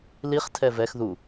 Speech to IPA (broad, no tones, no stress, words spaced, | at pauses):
liχtʰɛ vɛx ðu